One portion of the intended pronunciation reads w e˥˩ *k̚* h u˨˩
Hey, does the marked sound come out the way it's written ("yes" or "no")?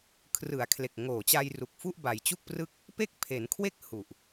yes